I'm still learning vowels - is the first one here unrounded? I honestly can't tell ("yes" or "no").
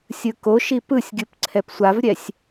yes